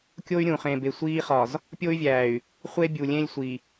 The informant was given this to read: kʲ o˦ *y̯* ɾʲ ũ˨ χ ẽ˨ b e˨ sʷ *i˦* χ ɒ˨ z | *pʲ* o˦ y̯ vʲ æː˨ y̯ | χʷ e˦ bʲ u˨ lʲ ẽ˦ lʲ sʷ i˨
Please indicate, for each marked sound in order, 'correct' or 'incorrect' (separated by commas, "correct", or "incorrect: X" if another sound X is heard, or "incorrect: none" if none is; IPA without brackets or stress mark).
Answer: correct, incorrect: iː˦, correct